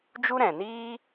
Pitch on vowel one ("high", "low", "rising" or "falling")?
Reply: high